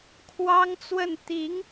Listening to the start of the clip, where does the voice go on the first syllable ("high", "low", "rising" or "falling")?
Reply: high